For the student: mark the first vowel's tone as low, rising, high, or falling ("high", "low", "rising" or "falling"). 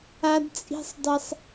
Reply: high